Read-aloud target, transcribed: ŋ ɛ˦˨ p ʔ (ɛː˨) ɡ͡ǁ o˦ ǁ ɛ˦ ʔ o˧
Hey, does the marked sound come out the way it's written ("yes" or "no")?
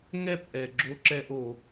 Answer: no